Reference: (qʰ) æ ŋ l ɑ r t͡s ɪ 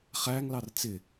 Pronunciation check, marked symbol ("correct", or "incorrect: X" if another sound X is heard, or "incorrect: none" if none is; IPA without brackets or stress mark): incorrect: χ